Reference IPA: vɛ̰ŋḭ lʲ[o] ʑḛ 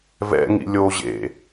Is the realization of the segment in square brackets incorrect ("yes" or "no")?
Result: no